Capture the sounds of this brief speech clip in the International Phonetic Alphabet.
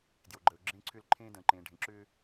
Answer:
d j o˩ ɡ͡ǃ əː˩ ʊ̯ ɡ͡ǁ ẽː˧ ǀʰ ʏː˧ l ǃʰ ẽː˧ d ə̃ː˩ ǃ ẽː˩ ɖʱ ẽ˩ ǁ ʏː˧

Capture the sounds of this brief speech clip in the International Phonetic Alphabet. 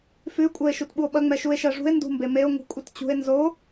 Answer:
f ʉ kʷʼ ɜ e̯ ʃ u t ɓ u o̯ ɓ ɐ ŋ͡m ɛ ʃ u e̯ ʃ ɜ ʐ ṳ e̯ n d ṳ m b e m e o̯ ŋ ṳ kʷʼ ɐ t t͡ɕ ṳ e̯ n z o

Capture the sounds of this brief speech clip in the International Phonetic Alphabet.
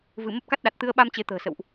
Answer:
v ɨ˧˩ m ə˦˥ p̚ k a˦˥ t̚ ɗ a˨˩ t̚ t̪ ɨ˧ ə̯ ɓ a˧ m t͡ɕ e˨˦ t̪ ə̤ː˨˩ s ə̰˧˨ w ʔ

